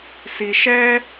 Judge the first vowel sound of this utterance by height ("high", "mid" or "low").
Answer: high